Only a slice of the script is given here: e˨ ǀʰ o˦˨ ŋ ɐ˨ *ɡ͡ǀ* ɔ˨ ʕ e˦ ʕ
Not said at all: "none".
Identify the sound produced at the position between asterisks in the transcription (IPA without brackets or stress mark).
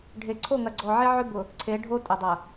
ɡ͡ǀ